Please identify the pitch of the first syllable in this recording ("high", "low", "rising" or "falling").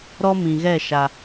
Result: high